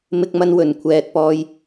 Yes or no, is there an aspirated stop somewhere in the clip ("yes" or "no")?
yes